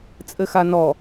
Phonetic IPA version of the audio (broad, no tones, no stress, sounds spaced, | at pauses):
t͡sʼ ɘ x a n ɔ